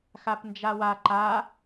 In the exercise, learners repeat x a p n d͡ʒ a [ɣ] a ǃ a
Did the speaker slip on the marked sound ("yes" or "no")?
yes